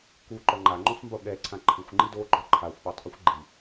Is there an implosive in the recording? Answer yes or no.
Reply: yes